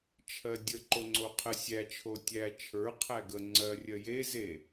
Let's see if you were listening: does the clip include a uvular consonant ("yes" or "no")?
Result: yes